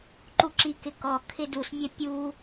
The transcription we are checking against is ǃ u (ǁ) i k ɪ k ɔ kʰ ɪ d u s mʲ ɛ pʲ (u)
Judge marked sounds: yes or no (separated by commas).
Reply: yes, yes